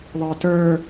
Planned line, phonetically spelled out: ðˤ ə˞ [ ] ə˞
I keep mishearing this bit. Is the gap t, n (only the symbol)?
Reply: t